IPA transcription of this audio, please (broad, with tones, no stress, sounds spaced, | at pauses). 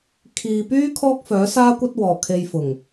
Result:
kʰ iː˨ p yː˥ kʰ ɔː˥ k̚ f œː˨˥ s aː˥ kʷ ɐ˥ t̚ w ɔː˨˩ kʰ e˧ j f ʊ˨˩ ŋ